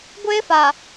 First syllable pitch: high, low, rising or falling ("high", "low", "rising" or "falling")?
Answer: high